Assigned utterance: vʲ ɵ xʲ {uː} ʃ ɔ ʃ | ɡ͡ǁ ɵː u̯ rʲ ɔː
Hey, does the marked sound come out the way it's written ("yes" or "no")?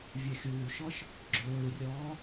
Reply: yes